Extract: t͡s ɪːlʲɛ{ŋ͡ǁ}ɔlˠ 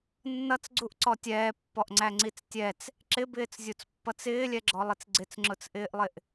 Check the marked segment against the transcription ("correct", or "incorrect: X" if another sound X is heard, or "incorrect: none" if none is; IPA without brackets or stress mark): incorrect: ɡ͡ǁ